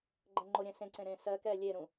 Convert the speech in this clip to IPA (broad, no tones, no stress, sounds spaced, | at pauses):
ɡ͡ǃ ɛ̃ ŋ͡ǃ o ɾʲ ɛ̃ s ẽ ǀ ẽ ɾ ẽ s ɜ k ɛ lʲ e ɾ ũ